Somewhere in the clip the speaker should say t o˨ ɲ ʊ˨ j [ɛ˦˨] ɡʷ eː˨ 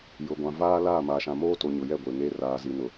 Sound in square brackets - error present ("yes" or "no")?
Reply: no